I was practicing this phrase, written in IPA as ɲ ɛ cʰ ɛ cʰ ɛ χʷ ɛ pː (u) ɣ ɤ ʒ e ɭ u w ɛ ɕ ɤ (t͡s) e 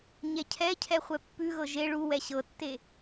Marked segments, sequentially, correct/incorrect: incorrect: ʉ, incorrect: tː

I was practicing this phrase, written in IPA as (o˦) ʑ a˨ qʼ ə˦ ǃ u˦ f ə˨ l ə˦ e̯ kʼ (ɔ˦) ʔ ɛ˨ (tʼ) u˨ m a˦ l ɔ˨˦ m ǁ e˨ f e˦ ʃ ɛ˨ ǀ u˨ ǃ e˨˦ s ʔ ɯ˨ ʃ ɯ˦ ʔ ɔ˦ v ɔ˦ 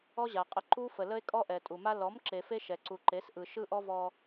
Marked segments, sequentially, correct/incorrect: incorrect: ɔ˦, correct, correct

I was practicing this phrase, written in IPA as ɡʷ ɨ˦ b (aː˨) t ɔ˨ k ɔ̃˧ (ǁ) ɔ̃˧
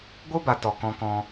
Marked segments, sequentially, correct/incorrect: incorrect: a˨, incorrect: k

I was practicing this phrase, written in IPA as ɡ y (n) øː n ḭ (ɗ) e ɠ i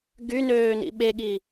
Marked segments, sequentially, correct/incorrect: correct, incorrect: ɓ

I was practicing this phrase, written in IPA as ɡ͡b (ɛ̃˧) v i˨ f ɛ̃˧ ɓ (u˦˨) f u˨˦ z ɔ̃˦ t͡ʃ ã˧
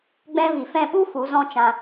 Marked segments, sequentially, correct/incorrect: incorrect: ɛ̃˦, incorrect: u˦

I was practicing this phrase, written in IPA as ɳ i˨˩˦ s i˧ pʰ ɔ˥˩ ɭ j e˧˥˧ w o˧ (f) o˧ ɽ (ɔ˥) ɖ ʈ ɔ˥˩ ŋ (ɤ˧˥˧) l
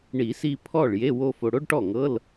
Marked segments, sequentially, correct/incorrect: correct, incorrect: o˥, correct

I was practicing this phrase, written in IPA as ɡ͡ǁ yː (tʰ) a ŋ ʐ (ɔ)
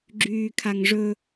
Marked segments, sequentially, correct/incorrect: incorrect: kʰ, incorrect: ɵ

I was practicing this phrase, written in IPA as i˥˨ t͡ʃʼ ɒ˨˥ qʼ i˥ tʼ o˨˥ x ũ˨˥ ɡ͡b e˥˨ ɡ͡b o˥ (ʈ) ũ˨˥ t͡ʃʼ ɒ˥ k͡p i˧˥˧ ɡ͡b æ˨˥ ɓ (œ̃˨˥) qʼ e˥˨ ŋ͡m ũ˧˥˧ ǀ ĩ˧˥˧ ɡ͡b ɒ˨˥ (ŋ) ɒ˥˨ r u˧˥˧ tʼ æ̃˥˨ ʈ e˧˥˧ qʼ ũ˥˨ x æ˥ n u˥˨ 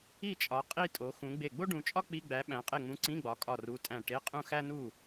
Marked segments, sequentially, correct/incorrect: incorrect: ɖ, incorrect: æ̃˨˥, incorrect: kʼ

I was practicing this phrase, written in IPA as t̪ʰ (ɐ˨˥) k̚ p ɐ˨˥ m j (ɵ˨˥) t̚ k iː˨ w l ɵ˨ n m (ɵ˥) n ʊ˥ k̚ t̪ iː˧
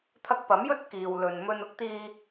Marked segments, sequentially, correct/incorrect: incorrect: ɐ˧, incorrect: ɵ˥, correct

